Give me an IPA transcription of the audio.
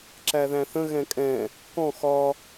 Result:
ǁæðæ̃θə̃ ɣɛ̃kʼɛ̃ | kɔ̃ xɒ

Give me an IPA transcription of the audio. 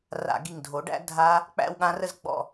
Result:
ra̰˧˩˧ɡi˧˩ŋ dʱo˩˥ɖæ̰˦˥ dʱa˦˥ | k͡pæ̰˥˧wɠã˦˥rə˥˧z ɡ͡bɔ̰˥˧

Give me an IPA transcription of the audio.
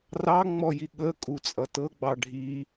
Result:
rɑŋ͡mɔji ɠəkʼut͡sʼʌ tɤɡ͡bɑ ɖʱi

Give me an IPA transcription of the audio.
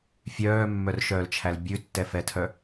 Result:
fʲœːmːœrʃœːlt͡ʃʰæl bʲʉtːɛfɛtʰœ

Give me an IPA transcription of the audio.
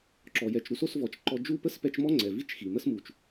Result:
ǁɔ˩jɛ˩t͡ʃɾu˦s o˦svɔ˩t͡ʃ ǃɔ˦ d͡ʒu˦pə˥s pɛ˦t͡ʃ mɔ˥ŋ͡ǀɛ˩vi˥t͡ʃ xi˩mə˥smu˩t͡ʃ

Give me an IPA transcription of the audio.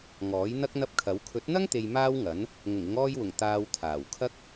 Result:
ŋɔː˨˥jn̪ɐ˥k̚ n̪ɐ˥p̚kʰɐ˨˥w kʰɵ˨˥t̚n̪ɐ˥ŋt̪e˨j maː˥wŋɐ˨˥n | ŋʊ˨˩ŋɪ˨˧ŋɔː˧jwʊ˨˩ŋ t̪aː˨w t̪ʰaː˨˩w kʰɐ˥k̚

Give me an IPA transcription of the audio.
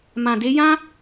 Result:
mã˧de˦ jã˦

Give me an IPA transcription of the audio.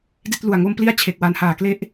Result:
di˥˩t̚lu˨˩a̯ŋo˥˩m pli˥˩a̯t͡ɕʰe˨˩k̚ wa˩˦nhaː˩˦kle˦˥ʔ

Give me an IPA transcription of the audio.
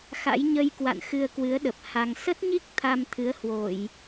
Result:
xa̰˧˥jɲə˧jkwa̰˧˨n xɨ˧ə̯kwɨ˨˦ə̯ɗə˨˩p̚ ha˧ŋ sə˦˥t̚ɲi˦˥k̚ t̪ʰa˧mt̪ʰɨ˨˦ə̯ hwo˧˩˨j

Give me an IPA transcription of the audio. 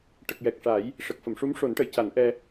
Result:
ʈə˨˩k̚jɛ˨˩k̚ʂa˨˩˦j | ʂə˨˩k̚fə˨˩˨mʂu˧˥m ʂo˨˩˦nʈə˨˩˨jca˨˩˦nʔɛ˧

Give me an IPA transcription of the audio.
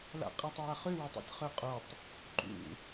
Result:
la̰qʼatˤwaχʉ wətˤo̰tʲχøqʼotˤ | ǃṵ

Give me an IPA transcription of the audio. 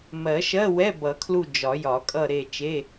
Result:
mɜ˨˩˦ʃɜ˧˥˧wɛ˧˥˧ bʌ˨˩˦kʰlu˦˨ d͡ʒɒ˨˩˦jɒ˨˩˦ kʼʌ˦˨ɾe˦˨ t͡ʃe˧˥˧

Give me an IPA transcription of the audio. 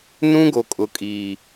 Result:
nũ˦ɡo˨ kʼʊ˨kʼiː˨

